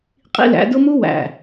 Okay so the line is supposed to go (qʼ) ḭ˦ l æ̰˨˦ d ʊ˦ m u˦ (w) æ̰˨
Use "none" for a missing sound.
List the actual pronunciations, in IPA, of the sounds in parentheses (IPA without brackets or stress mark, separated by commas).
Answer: qʼ, w